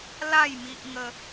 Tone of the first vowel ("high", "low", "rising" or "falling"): falling